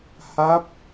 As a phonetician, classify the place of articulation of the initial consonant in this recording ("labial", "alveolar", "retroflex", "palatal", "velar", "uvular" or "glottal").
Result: glottal